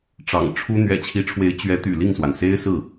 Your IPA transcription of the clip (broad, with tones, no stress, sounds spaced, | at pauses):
ʈ͡ʂ ɑ̰˨˩ ŋ ʈ͡ʂʰ u˥ n̪ ɥ ɛ̰˨˩ t͡ɕʰ i˧˥ ʈ͡ʂʰ w e˧˥ ɪ̯ t͡ɕ ɥ ɛ˧˥ t̪ y̰˨˩ l i˥˩ ŋ s w a˩ n s e˥ ɪ̯ s ɹ̩˥˩